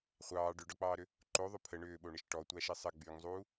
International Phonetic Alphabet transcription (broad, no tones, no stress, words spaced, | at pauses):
χʷɑː ɖʏɖɔk͡pɑːɾʏ | ǃoðˤʏ pʰə ɳʏːɓoɳɘʃ ʈɔtʷaʃi sˤɘ ɡ͡byŋzˤuː